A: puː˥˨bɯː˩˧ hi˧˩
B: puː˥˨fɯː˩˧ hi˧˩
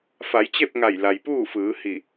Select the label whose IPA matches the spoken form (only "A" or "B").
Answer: B